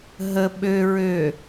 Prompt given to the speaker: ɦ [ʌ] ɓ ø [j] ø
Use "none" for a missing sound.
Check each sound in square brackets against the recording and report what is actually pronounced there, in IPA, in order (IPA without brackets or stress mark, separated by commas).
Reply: ə, ɹ